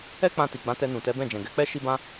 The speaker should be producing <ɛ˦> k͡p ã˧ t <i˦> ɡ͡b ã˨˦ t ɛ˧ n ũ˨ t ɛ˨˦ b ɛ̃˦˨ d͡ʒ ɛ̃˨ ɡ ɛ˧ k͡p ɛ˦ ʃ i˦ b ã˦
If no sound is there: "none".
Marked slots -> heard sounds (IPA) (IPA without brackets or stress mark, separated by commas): ɛ˦, i˨